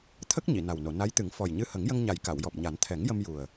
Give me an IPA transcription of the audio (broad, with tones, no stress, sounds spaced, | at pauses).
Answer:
t̪ʰ ə˦˥ k̚ ɲ i˨˩˨ n a˨˩ w n o˨˩˨ n a˧˥ j t̪ ɨ˨˩˦ ŋ f ɔ˨˩ j ɲ ɨ˧ h ə˨˩˦ ŋ j ə˧ ŋ ɲ a˨˩ j k a˨˩˨ w j ɔ˨˩ p̚ ɲ a˨˩˦ n t̪ʰ ɛ˨˩˦ ŋ j ə˧ m j u˨˩ ə̯